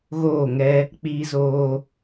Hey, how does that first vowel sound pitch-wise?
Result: falling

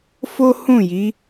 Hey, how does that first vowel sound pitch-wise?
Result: high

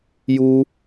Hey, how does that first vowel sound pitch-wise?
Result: high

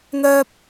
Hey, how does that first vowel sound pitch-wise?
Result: high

